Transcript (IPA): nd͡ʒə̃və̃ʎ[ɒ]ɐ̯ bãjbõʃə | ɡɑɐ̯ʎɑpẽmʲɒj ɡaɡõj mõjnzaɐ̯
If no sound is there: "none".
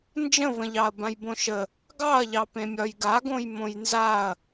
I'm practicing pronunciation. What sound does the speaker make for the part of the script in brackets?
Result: ɑ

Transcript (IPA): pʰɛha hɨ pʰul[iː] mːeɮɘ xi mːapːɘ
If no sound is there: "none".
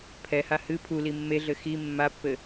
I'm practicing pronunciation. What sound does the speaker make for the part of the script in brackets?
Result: i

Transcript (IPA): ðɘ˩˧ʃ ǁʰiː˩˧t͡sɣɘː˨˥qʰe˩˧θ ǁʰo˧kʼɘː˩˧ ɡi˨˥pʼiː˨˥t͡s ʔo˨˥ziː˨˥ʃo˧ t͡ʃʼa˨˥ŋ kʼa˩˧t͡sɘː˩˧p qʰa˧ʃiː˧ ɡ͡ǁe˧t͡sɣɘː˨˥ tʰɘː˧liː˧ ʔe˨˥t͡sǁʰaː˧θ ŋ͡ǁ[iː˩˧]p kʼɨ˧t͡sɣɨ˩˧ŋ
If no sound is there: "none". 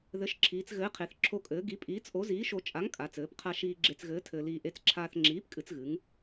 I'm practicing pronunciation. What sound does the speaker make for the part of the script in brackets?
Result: iː˨˥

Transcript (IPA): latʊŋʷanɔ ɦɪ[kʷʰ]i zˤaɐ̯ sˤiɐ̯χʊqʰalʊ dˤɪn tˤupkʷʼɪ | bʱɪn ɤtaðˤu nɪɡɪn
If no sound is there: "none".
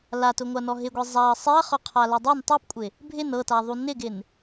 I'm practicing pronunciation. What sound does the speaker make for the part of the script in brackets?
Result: ɡʷ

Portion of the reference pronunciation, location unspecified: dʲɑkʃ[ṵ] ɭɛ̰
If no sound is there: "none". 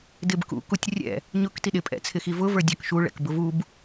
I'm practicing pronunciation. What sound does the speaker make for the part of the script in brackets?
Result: u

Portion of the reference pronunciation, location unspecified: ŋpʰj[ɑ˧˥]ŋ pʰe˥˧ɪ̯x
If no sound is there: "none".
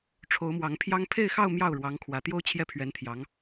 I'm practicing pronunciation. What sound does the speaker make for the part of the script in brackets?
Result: ɑ˥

